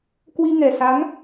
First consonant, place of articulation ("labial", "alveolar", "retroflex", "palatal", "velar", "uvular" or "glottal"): velar